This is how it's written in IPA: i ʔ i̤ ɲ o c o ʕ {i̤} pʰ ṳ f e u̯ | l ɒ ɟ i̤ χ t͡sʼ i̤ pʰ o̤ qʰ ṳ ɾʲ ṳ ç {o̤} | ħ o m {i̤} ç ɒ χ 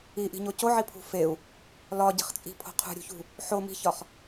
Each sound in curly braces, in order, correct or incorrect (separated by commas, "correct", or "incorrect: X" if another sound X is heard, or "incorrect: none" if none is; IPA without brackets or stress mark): incorrect: i, incorrect: ṳ, correct